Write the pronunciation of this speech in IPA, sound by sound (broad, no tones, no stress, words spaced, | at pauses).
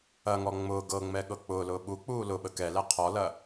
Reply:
ɐŋɔ ŋ͡mʊː ɡɤŋ͡mɛɠɤ k͡pʊːlʊː ɓuk͡puː lʊɓə kɛlɛ qʰɔlɐ